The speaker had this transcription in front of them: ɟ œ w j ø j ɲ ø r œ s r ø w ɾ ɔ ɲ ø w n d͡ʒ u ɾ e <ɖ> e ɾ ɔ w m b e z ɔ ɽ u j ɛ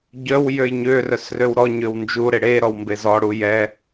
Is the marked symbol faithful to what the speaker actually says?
no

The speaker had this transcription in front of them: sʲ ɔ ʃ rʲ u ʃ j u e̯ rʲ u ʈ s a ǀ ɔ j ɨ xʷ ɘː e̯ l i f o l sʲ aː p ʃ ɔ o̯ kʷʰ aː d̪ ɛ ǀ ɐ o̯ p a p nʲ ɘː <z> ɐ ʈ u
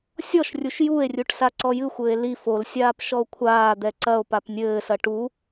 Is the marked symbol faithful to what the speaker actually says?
no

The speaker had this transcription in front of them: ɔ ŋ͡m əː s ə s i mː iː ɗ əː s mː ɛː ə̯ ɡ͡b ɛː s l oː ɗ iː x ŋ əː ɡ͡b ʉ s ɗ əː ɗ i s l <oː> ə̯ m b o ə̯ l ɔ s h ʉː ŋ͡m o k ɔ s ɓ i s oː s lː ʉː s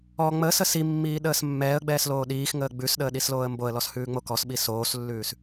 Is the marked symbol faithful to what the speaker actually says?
yes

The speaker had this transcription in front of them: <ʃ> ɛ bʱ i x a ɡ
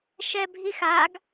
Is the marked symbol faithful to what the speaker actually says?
yes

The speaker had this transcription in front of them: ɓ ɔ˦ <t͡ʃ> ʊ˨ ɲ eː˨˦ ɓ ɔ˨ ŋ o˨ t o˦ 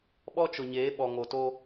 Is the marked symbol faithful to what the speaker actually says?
yes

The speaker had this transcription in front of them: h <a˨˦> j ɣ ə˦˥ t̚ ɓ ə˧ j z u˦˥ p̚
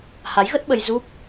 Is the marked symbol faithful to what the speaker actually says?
yes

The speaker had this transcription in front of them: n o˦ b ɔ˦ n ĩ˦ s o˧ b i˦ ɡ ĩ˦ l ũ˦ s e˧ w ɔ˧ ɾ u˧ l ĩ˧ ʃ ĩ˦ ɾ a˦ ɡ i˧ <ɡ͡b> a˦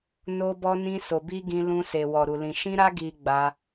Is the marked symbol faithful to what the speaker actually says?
yes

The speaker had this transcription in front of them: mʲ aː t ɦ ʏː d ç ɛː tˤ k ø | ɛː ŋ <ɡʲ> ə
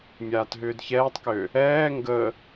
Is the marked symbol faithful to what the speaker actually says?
no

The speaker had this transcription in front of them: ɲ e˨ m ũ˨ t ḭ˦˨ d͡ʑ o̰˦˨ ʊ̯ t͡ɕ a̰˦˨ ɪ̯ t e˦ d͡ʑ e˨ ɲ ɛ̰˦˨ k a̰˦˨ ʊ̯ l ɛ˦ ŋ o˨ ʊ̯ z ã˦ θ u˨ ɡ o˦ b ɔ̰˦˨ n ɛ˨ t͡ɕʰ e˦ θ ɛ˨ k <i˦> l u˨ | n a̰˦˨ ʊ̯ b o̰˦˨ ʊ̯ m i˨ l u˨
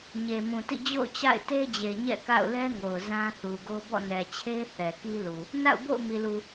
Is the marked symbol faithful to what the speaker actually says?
yes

